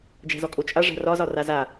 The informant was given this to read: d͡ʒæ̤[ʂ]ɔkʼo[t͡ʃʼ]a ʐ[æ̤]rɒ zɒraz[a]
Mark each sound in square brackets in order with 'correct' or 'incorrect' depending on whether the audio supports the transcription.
incorrect: z, correct, correct, correct

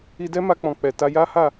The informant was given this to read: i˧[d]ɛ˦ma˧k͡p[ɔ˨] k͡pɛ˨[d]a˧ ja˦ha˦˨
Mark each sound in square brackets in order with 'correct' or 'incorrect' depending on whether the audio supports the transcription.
correct, incorrect: ɔ̃˨, incorrect: t

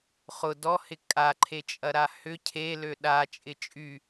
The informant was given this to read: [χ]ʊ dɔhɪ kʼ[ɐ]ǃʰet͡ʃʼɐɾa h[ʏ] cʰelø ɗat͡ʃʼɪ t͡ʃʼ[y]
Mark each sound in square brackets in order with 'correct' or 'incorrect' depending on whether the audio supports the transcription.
correct, incorrect: a, correct, correct

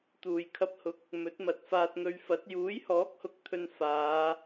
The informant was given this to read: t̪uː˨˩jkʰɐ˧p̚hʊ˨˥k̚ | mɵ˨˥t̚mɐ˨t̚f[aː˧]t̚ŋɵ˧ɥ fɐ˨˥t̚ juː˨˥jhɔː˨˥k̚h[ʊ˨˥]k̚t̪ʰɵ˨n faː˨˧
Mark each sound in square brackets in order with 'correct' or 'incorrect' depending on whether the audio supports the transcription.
correct, correct

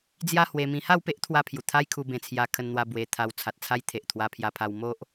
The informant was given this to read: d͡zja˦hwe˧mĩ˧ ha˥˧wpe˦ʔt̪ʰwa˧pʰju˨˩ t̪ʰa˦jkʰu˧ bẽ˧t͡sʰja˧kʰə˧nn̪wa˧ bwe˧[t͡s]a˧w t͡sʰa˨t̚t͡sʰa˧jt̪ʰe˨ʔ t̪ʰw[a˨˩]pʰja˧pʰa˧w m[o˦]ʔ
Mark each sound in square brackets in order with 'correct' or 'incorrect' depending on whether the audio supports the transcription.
incorrect: t̪ʰ, incorrect: a˧, correct

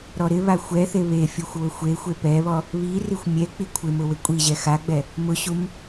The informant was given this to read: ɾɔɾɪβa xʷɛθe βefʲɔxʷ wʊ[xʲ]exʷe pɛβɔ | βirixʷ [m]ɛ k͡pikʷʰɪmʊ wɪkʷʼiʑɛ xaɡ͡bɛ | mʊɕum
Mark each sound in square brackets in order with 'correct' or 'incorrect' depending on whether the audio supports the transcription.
incorrect: xʷ, incorrect: mʲ

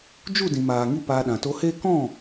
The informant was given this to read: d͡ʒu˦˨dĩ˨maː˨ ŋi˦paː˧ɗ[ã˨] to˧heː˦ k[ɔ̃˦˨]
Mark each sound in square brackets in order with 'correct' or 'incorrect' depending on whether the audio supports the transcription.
correct, correct

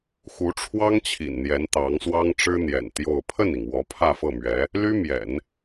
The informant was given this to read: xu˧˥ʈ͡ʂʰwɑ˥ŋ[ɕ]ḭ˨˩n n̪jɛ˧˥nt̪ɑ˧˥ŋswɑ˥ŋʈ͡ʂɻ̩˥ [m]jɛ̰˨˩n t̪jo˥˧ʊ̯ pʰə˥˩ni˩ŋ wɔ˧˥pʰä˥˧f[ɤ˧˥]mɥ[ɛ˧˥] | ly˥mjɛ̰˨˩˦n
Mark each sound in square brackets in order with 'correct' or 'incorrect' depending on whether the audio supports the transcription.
incorrect: t͡ɕʰ, incorrect: n̪, incorrect: ɤ˥˩, correct

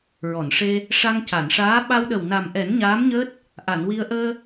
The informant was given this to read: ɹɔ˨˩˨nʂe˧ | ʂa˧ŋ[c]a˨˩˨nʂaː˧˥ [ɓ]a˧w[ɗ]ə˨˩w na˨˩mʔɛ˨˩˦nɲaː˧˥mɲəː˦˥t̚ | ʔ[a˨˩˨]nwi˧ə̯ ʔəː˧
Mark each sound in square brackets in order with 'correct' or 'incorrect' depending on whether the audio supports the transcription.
correct, correct, correct, correct

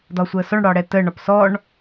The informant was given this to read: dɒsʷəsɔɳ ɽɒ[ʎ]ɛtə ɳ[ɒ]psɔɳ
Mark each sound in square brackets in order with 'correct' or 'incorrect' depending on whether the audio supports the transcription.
incorrect: ɽ, correct

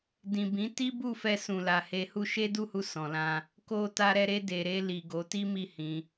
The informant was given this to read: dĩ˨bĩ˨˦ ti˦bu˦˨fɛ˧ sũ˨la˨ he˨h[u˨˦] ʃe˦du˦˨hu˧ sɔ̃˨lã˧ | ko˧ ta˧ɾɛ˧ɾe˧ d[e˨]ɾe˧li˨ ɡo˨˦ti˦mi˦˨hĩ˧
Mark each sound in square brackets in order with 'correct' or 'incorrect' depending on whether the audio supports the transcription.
incorrect: u˧, correct

